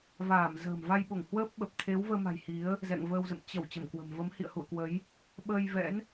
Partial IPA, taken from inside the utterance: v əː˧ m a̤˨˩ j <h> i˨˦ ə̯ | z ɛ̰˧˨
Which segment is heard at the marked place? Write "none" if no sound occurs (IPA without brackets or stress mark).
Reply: h